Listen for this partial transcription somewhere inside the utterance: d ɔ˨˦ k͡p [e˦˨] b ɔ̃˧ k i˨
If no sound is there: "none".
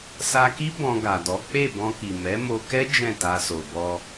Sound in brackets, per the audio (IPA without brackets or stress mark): e˦˨